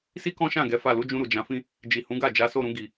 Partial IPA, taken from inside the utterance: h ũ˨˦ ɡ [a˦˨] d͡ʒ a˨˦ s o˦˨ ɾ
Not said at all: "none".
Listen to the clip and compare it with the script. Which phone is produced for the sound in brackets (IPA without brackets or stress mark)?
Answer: a˦˨